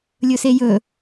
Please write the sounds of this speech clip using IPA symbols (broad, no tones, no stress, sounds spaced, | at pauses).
lʲ ɵ s e j ɵ